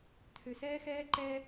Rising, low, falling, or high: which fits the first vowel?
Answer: low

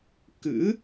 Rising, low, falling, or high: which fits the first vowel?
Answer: rising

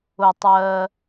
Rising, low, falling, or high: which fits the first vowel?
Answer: low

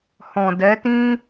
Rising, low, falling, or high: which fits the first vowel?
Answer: low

